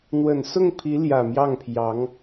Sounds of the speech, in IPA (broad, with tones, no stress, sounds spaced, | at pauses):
n̪ w ə˨˩ n s ʊ˥˩ ŋ pʰ i˧˥ l j ä˨˩ m j ɑ˥˩ ŋ pʰ j ɑ˧˥ ŋ